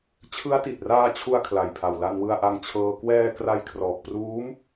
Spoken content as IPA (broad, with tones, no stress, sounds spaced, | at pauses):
t͡ɕʰ ɯ˦˥ a̯ t i˨˩ t̚ r aː˧ t͡ɕʰ u˧ a̯ kʰ l a˨˩ j pʰ a˨˩ w l a˧ n w ɯ˧ a̯ ʔ a˧ ŋ t͡ɕʰ ɤː˧ k w ɛː˧ k r a˧ j kʰ r ɔː˨˩ k̚ p r uː˦˥ m